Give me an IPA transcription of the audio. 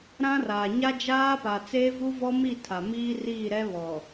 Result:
ɾã˦raː˨ ɲa˦d͡ʒaː˦pa˨ t͡seː˦vu˦vɔ˦mi˦˨ tʰa˨miː˦ riː˦˨ɾɛ˦βɔ˨

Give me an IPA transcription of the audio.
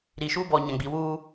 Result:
ɾi˨ʃuː˦bɔ˨ ɲã˨ɡ͡bi˨wuː˦

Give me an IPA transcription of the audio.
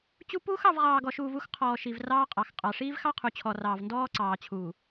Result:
t͡ɕu˦ puː˦xɑ˦˨v ʁɑː˨ɡɔ˨ʃuː˨v u˦xqʰɔː˨ʃi˨v rɑː˦qʼɑ˨x qʼɑ˨ʂiː˦v xɑ˦qʰu˨t͡ɕʰɔ˨rɑː˨v ndɔː˦ ǀɑː˨t͡ɕʰuː˨

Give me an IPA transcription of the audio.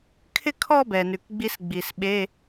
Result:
kʰɪ˥˧kʰɔ˥˧ bɛ˩nʉ˩kɡ͡bi˦˥sɡ͡bi˩s ɓe˧˥˧

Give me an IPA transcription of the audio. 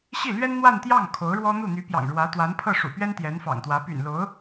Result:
ɕi˥˩lɥɛ˥n n̪wa˥˧nt̪jɑ˥˩ŋ kʰo˧˥ʊ̯ɻwɔ˥ n̪u˥˩n̪y˧˥pjɑ̰˨˩ŋɻwä˧˥ t̪wa˧˥npʰɤ˥˩ ʂṵ˨˩pɥɛ˥n t̪jɛ˧˥nfɑ̰˨˩ŋt̪wä˧˥ py̰˨˩nlo˧˥ʊ̯

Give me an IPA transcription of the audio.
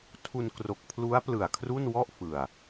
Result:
tʰu˧nkro˨˩k̚pʰlu˦˥a̯ plɯ˨˩a̯ kʰru˥˩nwɔ˥˩ʔ fɯ˨˩a̯

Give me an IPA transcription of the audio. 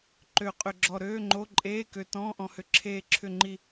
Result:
ǃø˧qʼʏ˧ɡ͡ǁɔ˧ ɾøː˧˥˧ŋ͡ǃo˧˥˧ǃʼeː˧˥˧kø˧ tɔ̃ː˧˥˧ʔɔ̃˧hʏ˧ ǁʰeː˧ǁʰʏ˧ŋ͡ǃi˧

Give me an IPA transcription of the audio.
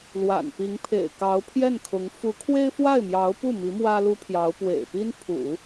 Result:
lwa̰˨˩npi˧˥ŋ pʰḛ˨˩ɪ̯kɑ˧˥ʊ̯ pʰjɛ˥˩nkʰʊ˧˥ŋ fu˧˥kʰwe˥ɪ̯fwa˥˩ɪ̯mjɑ˧˥ʊ̯ pu˥˩mi˧˥ mwä˥lu˥pʰjɑ˧˥ʊ̯ pwḛ˨˩ɪ̯pi˥n pʰṵ˨˩˦

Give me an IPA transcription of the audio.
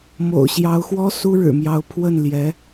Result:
mo̰˨˩ʊ̯ɕjɑ˧˥ʊ̯xwɔ˥ su˥ɻɻ̩˨˩mjɑ˧˥ʊ̯pʰwə˥˩n ljɛ˧˥

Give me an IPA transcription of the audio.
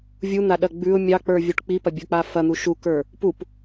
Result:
vʲun̪aɗɐ ɡ͡bʉʊ̯ mʲɑk͡pə˞vʲuʈ k͡pipɐbʲə˞k͡pa fɐn̪u ʃukə˞ | pup

